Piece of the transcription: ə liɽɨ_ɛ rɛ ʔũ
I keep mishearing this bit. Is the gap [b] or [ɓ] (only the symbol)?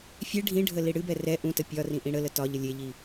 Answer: b